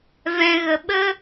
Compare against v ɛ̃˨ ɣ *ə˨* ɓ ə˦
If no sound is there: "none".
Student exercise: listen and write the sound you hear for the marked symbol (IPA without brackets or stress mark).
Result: ə˨